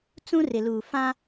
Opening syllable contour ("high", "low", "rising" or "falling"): high